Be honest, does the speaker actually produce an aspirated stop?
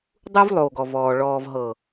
no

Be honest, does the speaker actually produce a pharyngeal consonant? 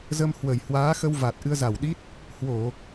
no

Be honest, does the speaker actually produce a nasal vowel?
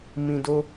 yes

